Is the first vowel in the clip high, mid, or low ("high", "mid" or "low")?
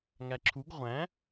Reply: low